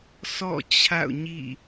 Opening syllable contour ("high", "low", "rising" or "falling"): falling